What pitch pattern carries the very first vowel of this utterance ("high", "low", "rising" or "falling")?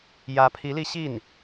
rising